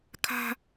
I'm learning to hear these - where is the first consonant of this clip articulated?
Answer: velum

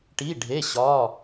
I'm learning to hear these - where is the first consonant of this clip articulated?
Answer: retroflex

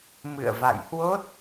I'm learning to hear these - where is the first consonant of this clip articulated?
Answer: lips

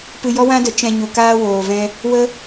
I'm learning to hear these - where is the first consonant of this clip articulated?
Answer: lips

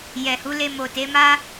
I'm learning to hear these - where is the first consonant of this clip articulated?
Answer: palate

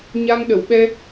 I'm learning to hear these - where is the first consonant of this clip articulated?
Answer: palate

